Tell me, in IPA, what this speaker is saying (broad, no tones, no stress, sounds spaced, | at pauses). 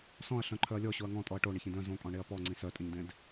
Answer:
s ɔ̃ ɐ̯ ɬ œ̃ ǃʰ œ ɐ̯ lʲ ɔ ɕ o ɐ̯ ŋ ɔ̃ tʼ ɔ ɐ̯ ʈ o ɳ e ç ĩ d œ̃ z õ kʼ ɔ̃ ɳ e ɐ̯ p ɔ ŋ͡ǀ ĩ s œ tʼ ĩ ɲ d ẽ d